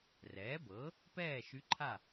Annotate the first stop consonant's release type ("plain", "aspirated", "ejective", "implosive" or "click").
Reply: plain